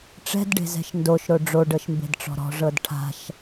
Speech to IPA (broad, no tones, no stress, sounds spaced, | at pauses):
ʈ͡ʂ ɛ̤ d ɖ e̤ z ɛ̤ ʃ n d o ʃ ɾ o ɖ͡ʐ o ɖ ɤ ʃ m b e̤ d ʈ͡ʂ ɔ̤ ɾ ɔ̤ ʐ ɤ d ʈʰ a̤ ʃ